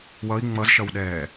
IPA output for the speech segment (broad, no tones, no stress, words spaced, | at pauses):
wʌi̯ ŋ͡mʌzʃʌwɗɛː